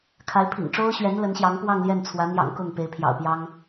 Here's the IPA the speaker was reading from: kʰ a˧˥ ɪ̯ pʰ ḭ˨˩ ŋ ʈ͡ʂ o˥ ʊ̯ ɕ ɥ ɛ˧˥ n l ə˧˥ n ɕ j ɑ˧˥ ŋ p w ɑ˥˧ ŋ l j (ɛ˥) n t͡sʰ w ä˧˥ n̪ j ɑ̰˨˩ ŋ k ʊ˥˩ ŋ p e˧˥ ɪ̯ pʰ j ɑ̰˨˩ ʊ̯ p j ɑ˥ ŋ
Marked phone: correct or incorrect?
incorrect